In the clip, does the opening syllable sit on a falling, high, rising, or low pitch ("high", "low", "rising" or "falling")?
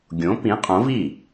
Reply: rising